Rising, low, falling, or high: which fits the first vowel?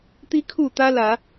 high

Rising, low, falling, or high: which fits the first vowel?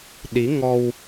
rising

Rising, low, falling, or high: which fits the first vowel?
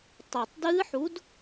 low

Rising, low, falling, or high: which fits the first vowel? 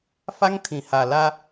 high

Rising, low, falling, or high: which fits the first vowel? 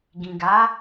low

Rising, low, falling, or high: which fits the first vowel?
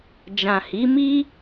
low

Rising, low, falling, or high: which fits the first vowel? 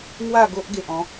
falling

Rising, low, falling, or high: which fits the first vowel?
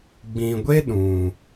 low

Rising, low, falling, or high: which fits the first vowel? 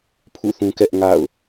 falling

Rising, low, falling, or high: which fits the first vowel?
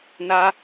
high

